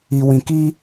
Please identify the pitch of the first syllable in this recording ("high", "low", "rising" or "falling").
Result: low